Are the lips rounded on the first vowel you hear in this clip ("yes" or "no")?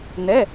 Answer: no